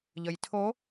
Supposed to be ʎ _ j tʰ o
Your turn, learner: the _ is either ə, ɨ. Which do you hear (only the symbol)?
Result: ə